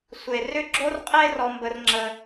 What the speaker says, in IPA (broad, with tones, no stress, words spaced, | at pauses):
sʷe˨rʏ˦ ɡ͡ǁo˦rqʼe˦rɔ˧ mbə˦rŋ͡ǁə˦